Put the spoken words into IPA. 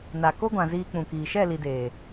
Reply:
n a˨ k o˦ ɡʷ ã˨ z iː˧ k͡p ũ˨ k iː˨ ʃ ɛ˦˨ l i˨ d eː˨

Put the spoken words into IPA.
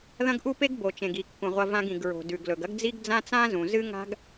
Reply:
ð ɐ̃˥ ɡ ʔ u˥ p e˥ ɡ b o˩ t͡ʃ ẽ˩ ɡ i˩ kː ũ˩ ʁʷ ɐ˧ v ã˧ ɡ ĩ˩ ɡ ɹ o̤˩ d ʉ˩ ɡ l ɵ˩ ɡ ɐ˥ ɡ d͡z i˥ ɡ d͡z ã˥ t͡s ã˥ z ũ˩ z ɨ˥ ŋ a̤˥ ɡ

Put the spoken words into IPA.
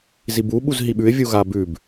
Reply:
z i b u ɓ u z ɦ i ɓ ʉ ɪ̯ vʲ u ɣ a b ʉ b

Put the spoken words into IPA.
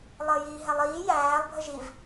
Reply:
lˠ əː j iː ɦ ɛ lˠ iː j æː lˠ bʱ ə ʒ i v

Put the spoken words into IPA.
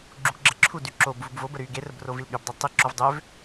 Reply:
ɡ͡ǁ u k ɡ͡ǁ ə ǁʰ u d y ǁ o b v u b v o b ə ɾ y ɡ e r ə b r o v i l ɠ y b dˤ o tˤ i ǁ o v dˤ ø v

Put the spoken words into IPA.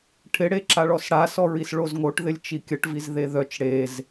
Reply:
ʈʰ ɪ ɽ e ǁ a ɭ ɔ s ɽ a s ɔ ɹ i s ɭ o z ŋ o ʈ ð ɪ lʲ t͡ʃ i kʲ ə ʈ v i z ð e ð œ t͡ʃ ɽ e z

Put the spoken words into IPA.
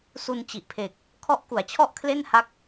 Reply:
s u˧ n t͡ɕ i˨˩ ʔ pʰ e˨˩ k̚ | kʰ ɔ˦˥ ʔ k u˩˦ a̯ t͡ɕʰ ɔ˥˩ ʔ kʰ l e˥˩ n h a˦˥ k̚

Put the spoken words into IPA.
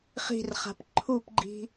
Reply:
χ i̤ r χ a̤ p ǃʰ u p ɡ͡ǃ i̤

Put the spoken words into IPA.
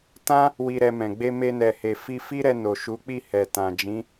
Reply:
t ã˦ | w i˧ ɾ ɛ˧ m ɛ̃˨ ɡ͡b e˧ m e˧ n ɛ˨ h e˨ f i˧ f i˦ ɾ ɛ˧ n o˨ ʃ u˨˦ k͡p i˦˨ h ɛ˨ t ã˨ d͡ʒ ĩ˨˦

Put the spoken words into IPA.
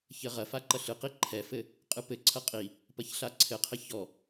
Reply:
ç ɘ ʁ ɐ f a ǃ ɐ ɬ ɨ q i ǃʰ ɛ f ɘ | qʼ ɨ p ɘ ǀʰ ɐ qʼ i | p ɐ ç ɬ a ǀʰ ɘ qʰ ɘ ç ɔ

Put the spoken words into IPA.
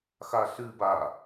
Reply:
x a ɬ ɨ b a

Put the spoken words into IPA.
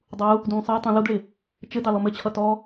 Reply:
dˤ u | d ũː sˤ ɘː tˤ ũ l u d ɭ ɪ | t͡ʃ ɘ d ɑ l ɔ m ɘ t͡ɕʰ ʌ t ɔ

